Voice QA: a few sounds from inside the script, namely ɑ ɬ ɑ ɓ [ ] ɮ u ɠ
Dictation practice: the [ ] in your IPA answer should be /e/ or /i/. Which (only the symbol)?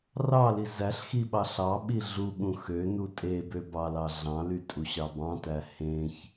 i